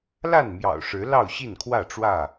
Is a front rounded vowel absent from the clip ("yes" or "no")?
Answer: yes